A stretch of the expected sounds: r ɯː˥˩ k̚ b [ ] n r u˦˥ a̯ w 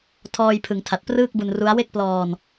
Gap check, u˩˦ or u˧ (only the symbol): u˧